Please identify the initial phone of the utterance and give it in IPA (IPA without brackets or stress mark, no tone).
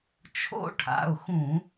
t͡ʃʰ